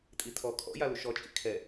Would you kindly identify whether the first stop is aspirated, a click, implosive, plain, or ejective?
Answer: ejective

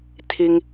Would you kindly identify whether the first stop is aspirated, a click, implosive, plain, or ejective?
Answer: aspirated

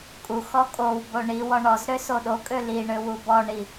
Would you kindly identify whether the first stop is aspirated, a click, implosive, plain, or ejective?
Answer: ejective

